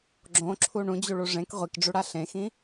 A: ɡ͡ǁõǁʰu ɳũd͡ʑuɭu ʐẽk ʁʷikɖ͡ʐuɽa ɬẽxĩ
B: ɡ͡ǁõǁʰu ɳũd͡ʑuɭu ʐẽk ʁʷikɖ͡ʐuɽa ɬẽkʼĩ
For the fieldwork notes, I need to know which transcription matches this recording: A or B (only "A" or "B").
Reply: A